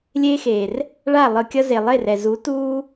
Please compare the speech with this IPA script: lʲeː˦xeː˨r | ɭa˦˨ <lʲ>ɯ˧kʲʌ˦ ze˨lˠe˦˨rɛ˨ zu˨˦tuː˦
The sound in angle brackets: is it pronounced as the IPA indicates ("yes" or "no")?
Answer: no